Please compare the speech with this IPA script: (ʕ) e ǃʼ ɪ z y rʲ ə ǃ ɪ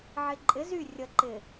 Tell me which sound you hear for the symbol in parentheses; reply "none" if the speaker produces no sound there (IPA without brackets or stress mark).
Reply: ʕ